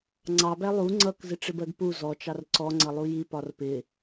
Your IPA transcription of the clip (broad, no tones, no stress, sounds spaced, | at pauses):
ŋ͡ǀ ɑ b æ lˠ u ŋ͡ǀ ʌ k z ɪ ʈ͡ʂ ɪ b ɜ ɡ p u z ɔ t͡ʃ ɑ r ǀ ɔ ŋ͡ǀ ʌ lˠ u j i p ɒ r p ɪ